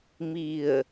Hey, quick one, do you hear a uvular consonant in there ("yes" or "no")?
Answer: no